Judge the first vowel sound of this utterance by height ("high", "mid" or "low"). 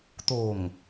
mid